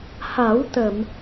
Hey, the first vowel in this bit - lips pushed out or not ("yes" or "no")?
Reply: no